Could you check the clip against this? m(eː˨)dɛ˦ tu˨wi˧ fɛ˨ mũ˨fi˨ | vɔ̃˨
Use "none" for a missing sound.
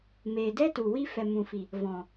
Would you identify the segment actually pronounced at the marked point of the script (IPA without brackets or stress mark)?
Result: eː˨